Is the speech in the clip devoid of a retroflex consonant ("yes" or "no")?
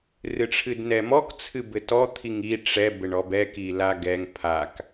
no